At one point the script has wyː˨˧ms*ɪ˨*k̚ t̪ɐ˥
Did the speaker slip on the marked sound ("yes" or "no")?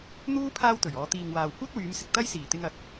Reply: no